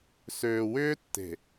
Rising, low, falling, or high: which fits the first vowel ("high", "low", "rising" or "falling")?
low